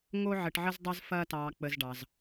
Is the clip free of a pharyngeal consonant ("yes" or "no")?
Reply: no